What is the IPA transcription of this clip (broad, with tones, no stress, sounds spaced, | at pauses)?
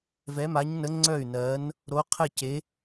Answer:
v ɛ˨˥ m a˨˥ ɲ n ə˨˥ ŋ͡ǀ œ˥˩ y̯ n ɜ˨˥ n | ɾ o˨˥ qʰ ɘ˥˩ c e˨˥